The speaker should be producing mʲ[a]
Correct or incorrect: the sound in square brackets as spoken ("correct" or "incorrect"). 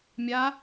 correct